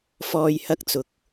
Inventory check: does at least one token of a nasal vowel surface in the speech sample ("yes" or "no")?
no